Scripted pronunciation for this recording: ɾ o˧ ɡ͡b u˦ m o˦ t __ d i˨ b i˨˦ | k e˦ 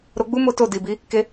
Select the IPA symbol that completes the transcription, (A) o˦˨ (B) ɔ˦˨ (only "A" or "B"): A